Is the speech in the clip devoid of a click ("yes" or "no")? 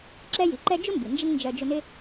no